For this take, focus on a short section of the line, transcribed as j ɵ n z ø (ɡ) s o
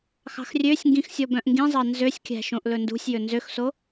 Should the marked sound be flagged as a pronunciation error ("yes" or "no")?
yes